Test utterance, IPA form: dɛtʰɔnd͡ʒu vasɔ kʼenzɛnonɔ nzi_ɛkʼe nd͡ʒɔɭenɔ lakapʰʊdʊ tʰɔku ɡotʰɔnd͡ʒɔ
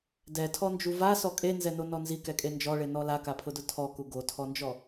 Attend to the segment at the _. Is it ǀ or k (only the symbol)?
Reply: k